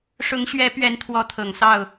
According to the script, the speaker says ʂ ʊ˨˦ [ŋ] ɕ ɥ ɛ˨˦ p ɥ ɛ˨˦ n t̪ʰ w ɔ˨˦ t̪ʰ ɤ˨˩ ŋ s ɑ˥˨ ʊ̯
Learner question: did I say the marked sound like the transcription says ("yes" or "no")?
yes